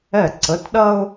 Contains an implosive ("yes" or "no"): yes